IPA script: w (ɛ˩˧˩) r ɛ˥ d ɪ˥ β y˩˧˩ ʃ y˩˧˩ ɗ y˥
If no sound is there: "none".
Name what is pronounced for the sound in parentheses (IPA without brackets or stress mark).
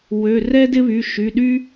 ø˩˧˩